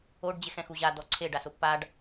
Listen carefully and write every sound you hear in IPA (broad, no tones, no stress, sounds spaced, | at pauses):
o ɖ d͡ʑ e x ɛ̃ x u ʑ a d̪ ɔ ǀʰ e ɖ a s ʊ pː a ɖ